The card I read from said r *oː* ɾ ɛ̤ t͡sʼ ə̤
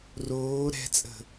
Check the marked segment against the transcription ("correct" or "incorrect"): correct